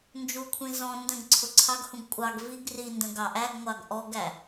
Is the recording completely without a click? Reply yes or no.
no